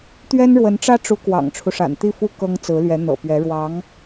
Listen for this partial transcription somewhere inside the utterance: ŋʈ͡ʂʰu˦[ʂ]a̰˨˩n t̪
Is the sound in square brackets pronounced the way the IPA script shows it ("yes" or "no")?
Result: yes